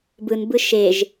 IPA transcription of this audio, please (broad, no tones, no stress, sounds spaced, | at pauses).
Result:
b ɯ n b ɯ ʃ e ʒ